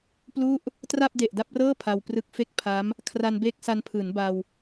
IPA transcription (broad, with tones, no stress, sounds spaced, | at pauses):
p l u˥˩ ʔ | t r a˥˩ p̚ d e˨˩ ʔ d a˥˩ p̚ r ɤː˥˩ pʰ a˧ w p r ɯ˦˥ k̚ f e˥˩ k̚ pʰ a˦˥ m | kʰ r a˧ n b eː˦˥ k̚ s a˧ n pʰ ɯː˩˦ n b a˧ w